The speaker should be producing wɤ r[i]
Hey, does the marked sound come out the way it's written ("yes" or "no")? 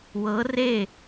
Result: no